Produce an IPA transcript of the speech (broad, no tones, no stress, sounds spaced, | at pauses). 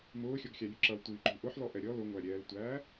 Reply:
m ʊː xʲ ɔ ɡ xʲ ɑ lʲ ə ǁ ʌ l tʷ iː ǃ ṳ ʔ ʊ ħ l ɔ ʔ ɛ ɾʲ ɔ l ʊ ŋʷ æ ɾʲ ɛː l tʷ æː